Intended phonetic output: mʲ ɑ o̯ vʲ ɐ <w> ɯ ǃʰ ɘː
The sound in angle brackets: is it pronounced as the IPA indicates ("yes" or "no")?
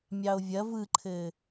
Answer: no